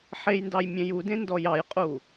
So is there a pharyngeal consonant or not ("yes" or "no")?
yes